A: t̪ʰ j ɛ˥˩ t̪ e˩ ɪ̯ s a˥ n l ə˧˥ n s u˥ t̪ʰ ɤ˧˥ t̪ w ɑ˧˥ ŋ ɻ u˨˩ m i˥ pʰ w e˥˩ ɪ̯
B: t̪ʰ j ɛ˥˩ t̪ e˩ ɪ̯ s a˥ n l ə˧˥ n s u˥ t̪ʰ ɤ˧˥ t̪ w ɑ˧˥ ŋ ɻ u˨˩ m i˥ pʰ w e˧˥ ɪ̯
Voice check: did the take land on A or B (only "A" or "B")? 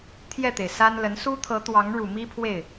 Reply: A